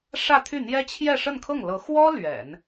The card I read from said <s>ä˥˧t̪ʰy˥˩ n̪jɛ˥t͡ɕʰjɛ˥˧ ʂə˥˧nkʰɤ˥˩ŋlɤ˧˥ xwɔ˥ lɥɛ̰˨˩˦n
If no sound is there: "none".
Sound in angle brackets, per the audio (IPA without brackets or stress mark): ʂ